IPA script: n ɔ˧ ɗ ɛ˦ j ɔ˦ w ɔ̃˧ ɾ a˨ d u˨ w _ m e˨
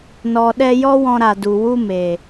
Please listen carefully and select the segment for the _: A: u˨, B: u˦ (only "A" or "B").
B